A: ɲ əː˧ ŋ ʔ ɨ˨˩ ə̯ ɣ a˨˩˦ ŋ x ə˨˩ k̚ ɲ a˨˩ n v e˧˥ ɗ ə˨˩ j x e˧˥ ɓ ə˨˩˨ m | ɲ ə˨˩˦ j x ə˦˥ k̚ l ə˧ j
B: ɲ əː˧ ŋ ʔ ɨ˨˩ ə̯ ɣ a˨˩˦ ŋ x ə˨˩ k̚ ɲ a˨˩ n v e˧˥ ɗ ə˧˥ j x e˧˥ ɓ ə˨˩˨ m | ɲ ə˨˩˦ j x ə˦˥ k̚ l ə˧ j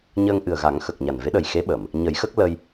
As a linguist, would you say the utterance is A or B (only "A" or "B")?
A